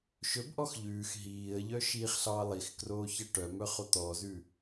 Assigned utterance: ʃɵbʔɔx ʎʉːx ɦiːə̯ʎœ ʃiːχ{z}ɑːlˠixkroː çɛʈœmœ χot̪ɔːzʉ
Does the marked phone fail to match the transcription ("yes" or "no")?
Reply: yes